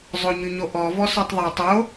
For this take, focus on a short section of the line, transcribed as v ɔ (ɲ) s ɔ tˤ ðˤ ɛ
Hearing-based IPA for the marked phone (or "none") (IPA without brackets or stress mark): none